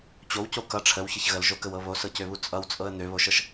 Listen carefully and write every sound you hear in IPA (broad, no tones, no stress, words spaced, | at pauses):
t͡ɕowco kʌ ʈ͡ʂʰəwçəç ɣəlʒokəwɤ βosɤcøβu t͡sʼʌwt͡sʼɤə̯ n̪øβoʃɤʃ